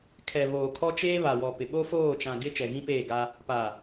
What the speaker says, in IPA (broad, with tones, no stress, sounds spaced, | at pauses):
kʰ ɛ˨ β oː˨ kʰ ɔ˦ t͡ʃ eː˦ β a˨ w ɔ˨ p ɪ˨ ɓ o˦ f oː˦˨ t͡ʃ ã˨ ɡ ɪ˦ t͡ʃ ɛ˨ ɣ ĩ˦ p eː˦˨ ɡ a˦ | p a˨